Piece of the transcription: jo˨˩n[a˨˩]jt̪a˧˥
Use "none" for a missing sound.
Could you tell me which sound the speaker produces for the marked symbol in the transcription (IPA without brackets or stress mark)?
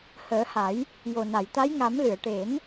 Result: a˨˩˨